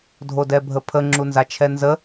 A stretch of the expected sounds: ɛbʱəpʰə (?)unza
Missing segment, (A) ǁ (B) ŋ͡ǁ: B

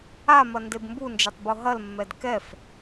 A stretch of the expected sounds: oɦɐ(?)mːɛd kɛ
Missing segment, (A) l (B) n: A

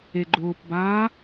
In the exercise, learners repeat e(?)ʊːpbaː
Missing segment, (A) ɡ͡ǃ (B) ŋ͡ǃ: A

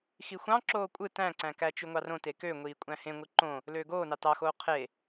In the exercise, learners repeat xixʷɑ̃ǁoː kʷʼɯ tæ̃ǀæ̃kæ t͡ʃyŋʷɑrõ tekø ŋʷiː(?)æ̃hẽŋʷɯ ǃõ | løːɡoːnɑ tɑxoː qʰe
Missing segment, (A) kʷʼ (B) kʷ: A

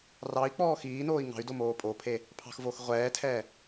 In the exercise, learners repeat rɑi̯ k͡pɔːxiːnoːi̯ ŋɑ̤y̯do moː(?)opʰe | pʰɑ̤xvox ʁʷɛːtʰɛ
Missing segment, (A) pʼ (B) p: A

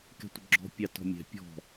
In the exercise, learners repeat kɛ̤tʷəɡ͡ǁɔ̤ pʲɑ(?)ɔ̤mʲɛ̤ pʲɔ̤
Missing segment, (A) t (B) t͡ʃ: A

